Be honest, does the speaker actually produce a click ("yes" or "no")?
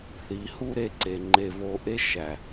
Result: yes